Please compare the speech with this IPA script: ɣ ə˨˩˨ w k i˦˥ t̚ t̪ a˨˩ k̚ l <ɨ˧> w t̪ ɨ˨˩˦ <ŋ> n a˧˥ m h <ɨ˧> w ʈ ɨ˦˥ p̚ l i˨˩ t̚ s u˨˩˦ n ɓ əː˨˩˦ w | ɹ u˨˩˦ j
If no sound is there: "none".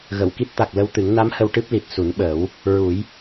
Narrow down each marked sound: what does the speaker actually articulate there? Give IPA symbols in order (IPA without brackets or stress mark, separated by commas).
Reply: ə˧, ŋ, ə˧